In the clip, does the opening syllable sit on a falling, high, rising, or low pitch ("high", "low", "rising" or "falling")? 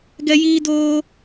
high